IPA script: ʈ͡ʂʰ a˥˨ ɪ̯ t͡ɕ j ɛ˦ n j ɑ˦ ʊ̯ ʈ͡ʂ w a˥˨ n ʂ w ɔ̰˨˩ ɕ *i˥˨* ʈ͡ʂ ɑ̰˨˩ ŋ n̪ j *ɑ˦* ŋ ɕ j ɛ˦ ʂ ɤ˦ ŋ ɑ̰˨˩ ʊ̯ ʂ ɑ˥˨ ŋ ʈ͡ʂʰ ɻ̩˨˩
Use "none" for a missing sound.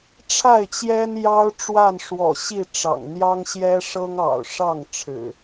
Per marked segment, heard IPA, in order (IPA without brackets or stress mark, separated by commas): i˥˨, ɑ˦